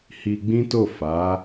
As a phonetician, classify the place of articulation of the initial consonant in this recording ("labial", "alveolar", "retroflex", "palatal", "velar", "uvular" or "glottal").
glottal